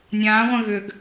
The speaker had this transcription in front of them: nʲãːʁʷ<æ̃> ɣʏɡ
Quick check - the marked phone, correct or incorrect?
incorrect